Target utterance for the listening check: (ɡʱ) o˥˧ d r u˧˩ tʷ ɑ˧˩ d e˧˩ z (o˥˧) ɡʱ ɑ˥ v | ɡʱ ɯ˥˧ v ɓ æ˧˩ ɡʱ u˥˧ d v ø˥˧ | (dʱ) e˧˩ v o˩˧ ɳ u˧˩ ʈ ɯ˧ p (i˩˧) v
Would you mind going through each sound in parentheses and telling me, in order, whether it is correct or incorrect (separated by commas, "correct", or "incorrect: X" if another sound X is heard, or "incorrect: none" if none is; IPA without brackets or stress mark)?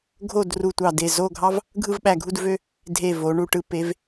correct, correct, correct, incorrect: e˩˧